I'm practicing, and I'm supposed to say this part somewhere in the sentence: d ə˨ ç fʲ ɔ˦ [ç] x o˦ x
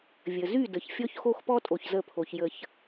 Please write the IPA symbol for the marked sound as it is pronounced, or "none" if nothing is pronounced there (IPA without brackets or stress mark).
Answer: ç